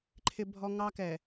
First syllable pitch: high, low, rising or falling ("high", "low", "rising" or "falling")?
high